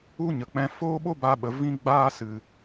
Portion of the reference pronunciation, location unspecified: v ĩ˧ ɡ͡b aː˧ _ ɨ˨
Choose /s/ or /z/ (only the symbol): s